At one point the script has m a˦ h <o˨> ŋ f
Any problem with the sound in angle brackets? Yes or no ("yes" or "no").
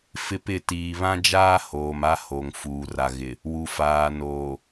no